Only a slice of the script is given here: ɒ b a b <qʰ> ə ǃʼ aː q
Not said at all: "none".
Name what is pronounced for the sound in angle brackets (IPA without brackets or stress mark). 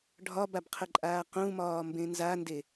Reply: qʰ